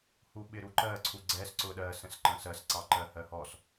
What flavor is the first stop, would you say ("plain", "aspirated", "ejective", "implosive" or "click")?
implosive